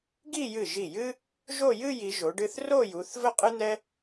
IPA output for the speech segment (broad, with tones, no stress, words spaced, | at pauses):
ɡi˥˧jɨ˧˩ ʒi˧˩jɨ˥ | ʒo˥˧ jɨ˥˧ji˩˧ ʒo˩˧ɖɨ˥˧θ ro˥˧ju˩˧θ və˥qʼɨ˥n̪ɛ˥